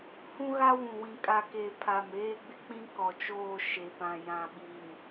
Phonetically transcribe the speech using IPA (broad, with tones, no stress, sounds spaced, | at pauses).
h ũ˦ ɣ a˦ w ũ˨ w ĩ˨ kʼ a˨ k e˨ pʰ a˨ m eː˦ ɡ͡b ɪ˦ k͡p ĩ˦ k ɔ˨ t͡ʃ oː˦˨ ʃ e˨ p ã˨ j ã˨ ɓ i˨ n